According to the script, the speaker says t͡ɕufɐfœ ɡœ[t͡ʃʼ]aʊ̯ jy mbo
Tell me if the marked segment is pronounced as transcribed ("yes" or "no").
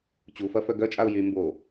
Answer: yes